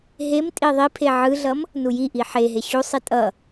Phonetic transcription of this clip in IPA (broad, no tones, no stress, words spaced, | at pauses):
ɦem tʼiðˤipʰe ʕɯɮʌm | nujiʔi ħeɦe ɕusˤi tʼʌ